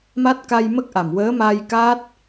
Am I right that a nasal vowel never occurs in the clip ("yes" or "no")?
yes